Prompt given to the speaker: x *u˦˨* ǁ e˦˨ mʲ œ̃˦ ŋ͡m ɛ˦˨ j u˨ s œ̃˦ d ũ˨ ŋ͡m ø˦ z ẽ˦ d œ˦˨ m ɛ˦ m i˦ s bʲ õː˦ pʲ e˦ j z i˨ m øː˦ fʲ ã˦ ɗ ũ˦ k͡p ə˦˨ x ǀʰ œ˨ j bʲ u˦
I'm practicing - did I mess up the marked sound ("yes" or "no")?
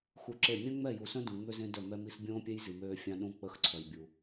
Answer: yes